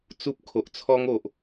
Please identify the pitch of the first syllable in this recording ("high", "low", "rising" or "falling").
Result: high